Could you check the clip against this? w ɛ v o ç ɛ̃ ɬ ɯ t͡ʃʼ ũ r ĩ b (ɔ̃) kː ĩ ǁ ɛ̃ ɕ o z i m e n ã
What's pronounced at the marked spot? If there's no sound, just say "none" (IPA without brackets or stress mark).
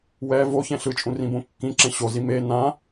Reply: õ